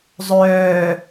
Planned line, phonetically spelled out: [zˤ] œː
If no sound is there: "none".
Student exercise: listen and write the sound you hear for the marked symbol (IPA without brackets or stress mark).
zˤ